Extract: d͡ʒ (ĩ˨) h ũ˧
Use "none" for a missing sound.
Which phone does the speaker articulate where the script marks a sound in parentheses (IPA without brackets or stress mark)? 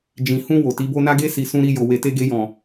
ĩ˨